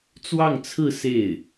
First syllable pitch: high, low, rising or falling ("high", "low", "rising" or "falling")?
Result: falling